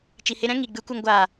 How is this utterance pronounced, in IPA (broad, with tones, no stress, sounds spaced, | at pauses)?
t͡ʃ i˨ h e˧ ɾ ɛ̃˦ ŋ i˨ ɡ͡b ɨ˨˦ kʷ ə˧ ŋ ɡʷ aː˨